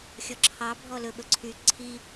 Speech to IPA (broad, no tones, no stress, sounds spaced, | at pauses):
xʲ ɔ ǁʰ ɑ bʱ ɔ l ɵ ɓ ɵ ǀʰ y ǀʰ i